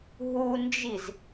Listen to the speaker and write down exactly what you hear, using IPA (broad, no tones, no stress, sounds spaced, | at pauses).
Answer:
ɦ u n d͡ʒ i z